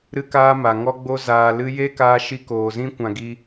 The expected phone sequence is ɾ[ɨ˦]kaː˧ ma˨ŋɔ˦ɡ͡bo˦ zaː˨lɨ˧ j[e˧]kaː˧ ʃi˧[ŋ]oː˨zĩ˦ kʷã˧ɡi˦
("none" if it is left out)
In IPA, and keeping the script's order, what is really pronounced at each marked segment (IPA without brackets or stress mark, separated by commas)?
ɨ˧, e˦, k